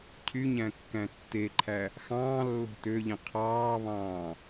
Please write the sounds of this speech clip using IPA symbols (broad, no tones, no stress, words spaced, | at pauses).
cʰyɲæ̃kːæ̃ tːeǃʰæ | xɑ̃ːlːo̤ tøʎĩ qʰɑːβɑ̃ː